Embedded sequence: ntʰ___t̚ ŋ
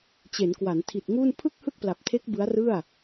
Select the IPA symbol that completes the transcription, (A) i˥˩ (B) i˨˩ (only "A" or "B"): B